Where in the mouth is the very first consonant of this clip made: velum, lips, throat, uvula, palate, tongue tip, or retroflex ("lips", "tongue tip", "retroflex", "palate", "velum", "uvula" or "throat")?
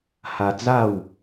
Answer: throat